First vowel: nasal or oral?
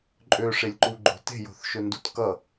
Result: oral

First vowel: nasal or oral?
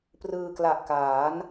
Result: oral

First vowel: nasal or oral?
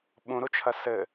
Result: nasal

